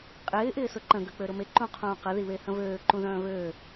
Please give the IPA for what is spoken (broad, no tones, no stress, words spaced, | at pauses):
qʼɪː ʔɪːsʊǃə̃ ɡøk͡pøɾʊme ǃũqʰũːqə ðiβehə̃vøː ǃũðœ̃ːvøː